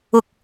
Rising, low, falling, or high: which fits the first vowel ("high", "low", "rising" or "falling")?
low